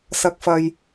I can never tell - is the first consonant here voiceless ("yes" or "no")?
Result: yes